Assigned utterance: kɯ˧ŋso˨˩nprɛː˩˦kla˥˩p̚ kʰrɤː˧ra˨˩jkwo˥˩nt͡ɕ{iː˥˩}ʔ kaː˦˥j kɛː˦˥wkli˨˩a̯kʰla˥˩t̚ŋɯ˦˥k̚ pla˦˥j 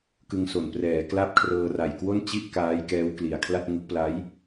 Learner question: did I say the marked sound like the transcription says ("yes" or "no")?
no